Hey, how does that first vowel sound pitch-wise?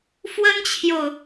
high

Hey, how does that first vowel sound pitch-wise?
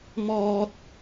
high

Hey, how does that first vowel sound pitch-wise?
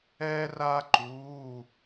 high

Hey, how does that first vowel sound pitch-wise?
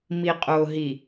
low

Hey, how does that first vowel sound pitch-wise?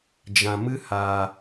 low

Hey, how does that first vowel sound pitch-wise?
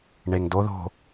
low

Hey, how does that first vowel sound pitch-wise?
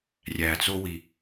low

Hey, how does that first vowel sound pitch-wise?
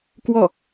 falling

